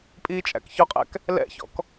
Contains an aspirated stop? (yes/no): no